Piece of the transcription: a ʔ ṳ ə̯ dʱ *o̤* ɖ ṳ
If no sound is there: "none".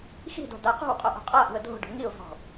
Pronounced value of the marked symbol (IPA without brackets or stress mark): o̤